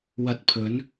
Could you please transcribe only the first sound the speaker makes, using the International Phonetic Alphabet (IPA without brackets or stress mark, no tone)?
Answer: w